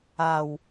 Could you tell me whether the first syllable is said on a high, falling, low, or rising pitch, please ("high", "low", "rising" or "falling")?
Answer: low